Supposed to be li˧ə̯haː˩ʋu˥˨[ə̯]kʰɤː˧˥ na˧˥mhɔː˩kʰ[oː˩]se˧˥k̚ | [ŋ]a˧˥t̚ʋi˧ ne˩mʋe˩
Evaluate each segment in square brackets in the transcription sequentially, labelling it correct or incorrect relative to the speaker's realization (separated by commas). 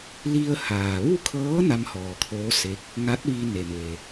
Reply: incorrect, incorrect, correct